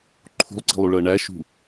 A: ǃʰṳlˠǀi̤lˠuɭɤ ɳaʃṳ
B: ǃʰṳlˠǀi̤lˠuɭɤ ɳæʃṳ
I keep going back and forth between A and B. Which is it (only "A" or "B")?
B